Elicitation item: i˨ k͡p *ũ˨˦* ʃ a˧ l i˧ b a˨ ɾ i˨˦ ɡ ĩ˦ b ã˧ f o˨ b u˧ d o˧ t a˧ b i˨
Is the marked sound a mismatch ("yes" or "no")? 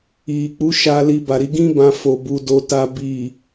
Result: yes